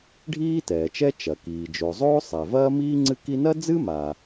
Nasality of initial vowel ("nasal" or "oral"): oral